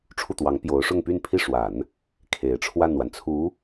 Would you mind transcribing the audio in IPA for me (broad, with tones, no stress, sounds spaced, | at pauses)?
ʈ͡ʂʰ u˥˩ t̪ w ɑ˧˥ ŋ p j o˧˥ ʊ̯ ʂ ʊ˥˧ ŋ p y˥˧ n pʰ i˥˩ ʂ w a˨˩˦ n | kʰ e˨˩ ɪ̯ ʈ͡ʂʰ w a˥˩ n w a˩ n t͡sʰ u˧˥